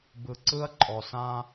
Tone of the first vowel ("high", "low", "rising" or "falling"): low